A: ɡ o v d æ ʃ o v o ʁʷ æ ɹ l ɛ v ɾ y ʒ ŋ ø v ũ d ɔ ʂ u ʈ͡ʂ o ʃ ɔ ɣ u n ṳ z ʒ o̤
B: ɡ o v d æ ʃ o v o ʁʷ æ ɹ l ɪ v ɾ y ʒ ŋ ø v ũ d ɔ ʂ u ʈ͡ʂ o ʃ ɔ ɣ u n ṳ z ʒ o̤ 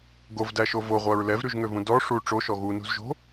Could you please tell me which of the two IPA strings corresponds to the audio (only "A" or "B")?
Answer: A